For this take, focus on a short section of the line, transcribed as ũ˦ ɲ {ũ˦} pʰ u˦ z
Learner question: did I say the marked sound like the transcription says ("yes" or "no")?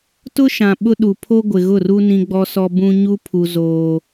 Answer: no